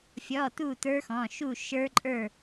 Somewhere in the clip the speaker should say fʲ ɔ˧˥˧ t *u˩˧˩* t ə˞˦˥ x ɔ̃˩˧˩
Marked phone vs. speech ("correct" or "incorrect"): incorrect